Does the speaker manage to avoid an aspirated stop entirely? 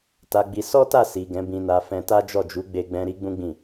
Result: yes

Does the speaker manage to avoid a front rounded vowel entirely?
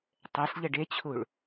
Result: yes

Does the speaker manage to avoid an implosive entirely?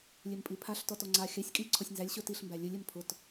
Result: yes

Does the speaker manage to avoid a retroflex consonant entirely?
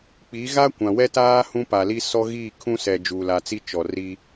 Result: yes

